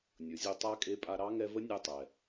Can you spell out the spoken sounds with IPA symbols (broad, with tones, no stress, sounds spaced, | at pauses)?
nʲ ʊ˩˧ zʲ ʊ˧˥ tˤ a˧˥ kʼ e˧ pʼ a˧ ɾ ɑ˧˥ ŋ ɛ˧ v ə˧˥ nʲ ɛ˧ tˤ ɛ˩